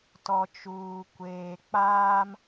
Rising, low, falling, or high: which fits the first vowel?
low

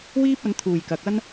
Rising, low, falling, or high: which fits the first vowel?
high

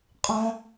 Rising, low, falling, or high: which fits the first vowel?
high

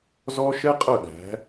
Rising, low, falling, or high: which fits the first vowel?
high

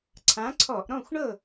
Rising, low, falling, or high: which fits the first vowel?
rising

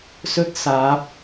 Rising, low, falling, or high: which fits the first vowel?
high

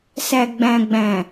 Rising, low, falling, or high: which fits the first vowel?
low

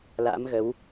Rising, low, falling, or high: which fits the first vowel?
rising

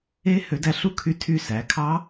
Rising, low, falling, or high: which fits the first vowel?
rising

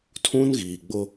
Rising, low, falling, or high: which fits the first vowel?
high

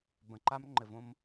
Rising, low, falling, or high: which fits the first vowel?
low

